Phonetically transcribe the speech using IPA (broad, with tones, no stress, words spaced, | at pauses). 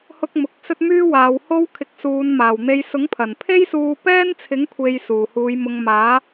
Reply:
hʊ˥k̚mʊ˨˥k̚ sɵ˥t̚myː˥waː˨˧w ho˥w kʰɪ˧k̚suː˨˧nmaː˨˩wn̪e˧j sʊ˨˥ŋpʰɐ˨˩npʰe˥jsuː˧ pɛː˥nt͡sʰɪ˨˥ŋkʷʰe˨j suː˨˩huː˨˧j mʊ˨ŋ maː˨˥